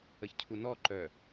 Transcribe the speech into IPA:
ə ç cʰ u n ɔ ǃ œ

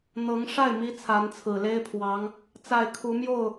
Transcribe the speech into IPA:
n̪ ɤ˧˥ ŋ ʂ a˥˩ ɪ̯ m i˥ t͡sʰ a˧˥ n t͡sʰ ɹ̩˨˩ l e˥ ɪ̯ pʰ w ɑ˧˥ ŋ | t͡s a˥˩ ɪ̯ kʰ u˧˥ m j o˥˩ ʊ̯

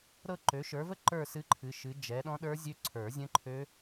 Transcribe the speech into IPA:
ɾ ɤ˥˧ ǃ ø˨˦ ʃ ə˞˨˦ v ə˥˧ ǃ ə˞˥˧ s ɨ˦˥ ǃʰ ɨ˨˦ ʃ ɨ˨˦ d͡ʒ ɛ˨˦ ɗ ɔ̃˦˥ ɗ ə˞˦˥ zʲ ø˦˥ ǀʰ ə˞˨˩˦ zʲ ə̃˦˥ ǃʰ ø˦˥

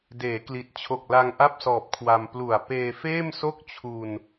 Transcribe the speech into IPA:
d eː˩˦ k l i˨˩ t̚ t͡ɕʰ o˨˩ k̚ l a˧ ŋ ʔ a˥˩ p̚ s ɔː˨˩ p̚ kʰ w a˧ m p l u˨˩ a̯ p eː˧ f eː˥˩ m s o˥˩ k̚ t͡ɕʰ u˧ n

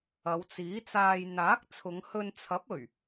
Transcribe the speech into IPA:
ɐ˨˧ w t͡s iː˨˥ t͡s aː˧ j n̪ aː˨˥ k̚ t͡sʰ ʊ˨˧ ŋ h ɵ˧ n t͡sʰ ɐ˨˥ p̚ ɵ˨˩ ɥ

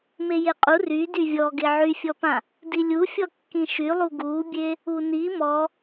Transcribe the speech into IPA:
m e j e qʼ u r y d y vʲ ɔ ɡ e ʕ y fʲ ɔ p ã | d i lʲ u fʲ ɔ kː ĩ ʃ y lˠ u ɡ u bʲ e | u n i m ɔ

